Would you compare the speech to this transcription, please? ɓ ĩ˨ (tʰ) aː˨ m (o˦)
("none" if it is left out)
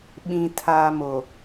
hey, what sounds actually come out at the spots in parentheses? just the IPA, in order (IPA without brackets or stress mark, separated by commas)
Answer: tʰ, o˨